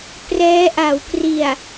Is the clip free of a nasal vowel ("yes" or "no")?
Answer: yes